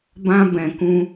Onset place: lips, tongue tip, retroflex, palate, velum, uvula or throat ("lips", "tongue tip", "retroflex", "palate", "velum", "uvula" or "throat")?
lips